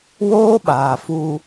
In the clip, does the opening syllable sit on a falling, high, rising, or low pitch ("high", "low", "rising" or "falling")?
high